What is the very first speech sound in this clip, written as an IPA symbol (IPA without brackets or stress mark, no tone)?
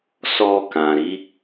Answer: s